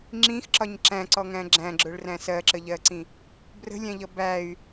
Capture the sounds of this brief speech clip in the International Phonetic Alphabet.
ŋ͡ǁĩxǁɒɲ ǁæ̃ǀɔŋæ̃ ɡ͡ǁæ̃ɡ͡ǁʊɭræ̃ sɜǁəʎɜǀĩ | brə̤lʲæ̃ʎʌ bæy̯

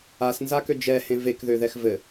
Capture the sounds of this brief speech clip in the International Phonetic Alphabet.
asnzakø d͡ʒɛhẽ vekðøðɛx vɘ

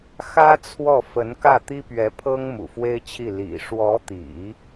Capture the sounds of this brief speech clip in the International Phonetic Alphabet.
xä˥ t͡sʰwɔ˥˩fə˧˥n kä˥˩t̪i˥pɥɛ˧˥pʰɤ˥ŋ mṵ˨˩fwe˥ɪ̯t͡ɕʰi˥˩ lḭ˨˩ʂwɔ˧˥t̪ḭ˨˩˦

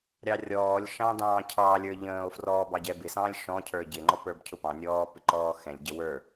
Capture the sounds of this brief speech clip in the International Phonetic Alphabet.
ɾʲɑrʲɔːlʲʃɑ̃ dɑ̃ːcʰɑlʲə˞ ʎə̃ːo̯frɔː bɑɟɛbɪsɑ̃ːlʲ ʃɔ̃cʰə˞ ɟɪŋ͡ǃɔ pə˞bcʰʊpɑ̃nʲɔː pɪǃɔːxɛ̃lʲɟə wə˞

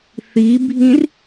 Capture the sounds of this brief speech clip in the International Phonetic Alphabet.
θibʱĩr

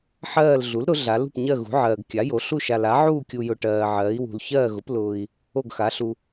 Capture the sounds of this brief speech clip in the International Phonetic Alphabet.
ħɜː˥˨l ɮu˩˥l ɾʊ˩˥ɮa˩˥l ṳ˨pɲɜ˥˨ɣṳ˩˥ʕɜː˨ɡ kʲa˩˥jo˩˥ɬu˥˨ ʃa˨la˩˥ʕuː˥˨ kʲu˨jʊ˨ ʈɜː˨ ʕɜː˩˥i̯wṳ˨l çɜː˥˨ɣʊ˩˥plʊː˨i̯ | o˥˨ɡxa˩˥ɬu˨

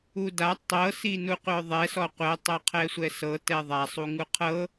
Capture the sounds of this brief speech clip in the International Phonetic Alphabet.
uda tˤɤ sinuqʷœðˤɛ sɔqʷɛ tˤɤqʰɛsʷɛsɤ tɛðˤa sˤuŋuqʰɤ

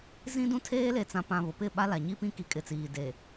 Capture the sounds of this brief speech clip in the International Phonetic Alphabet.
zĩ˦dũ˦tʰeː˦ le˨t͡sã˨pã˨ βʊ˨pɪ˦˨ɓa˦la˨ ɲi˦pĩ˦ ki˨kʼɪ˨t͡siː˨ de˨

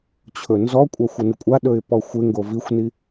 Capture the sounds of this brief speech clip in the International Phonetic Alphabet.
t͡ɕʰɵnzɔkʷʼa xʷənɪkʷʼaɗɵɪ̯ pɔxʷɪŋɡo vixʷni

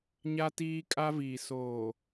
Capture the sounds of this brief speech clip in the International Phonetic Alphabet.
ɲa˦tiː˦ kʼa˦viː˨ soː˨

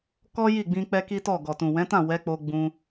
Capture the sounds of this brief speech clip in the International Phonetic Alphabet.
kɔ˦ji˦˨ɡ͡bĩ˧ k͡pɛ˦ki˦tɔ˦˨ ɡɔ˨tũ˨wɛ̃˨˦tã˦˨ wɛ˨˦k͡po˧ ɡ͡bũ˧

